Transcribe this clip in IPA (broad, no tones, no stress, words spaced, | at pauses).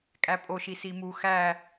kʼæpʼoʃi simu xæ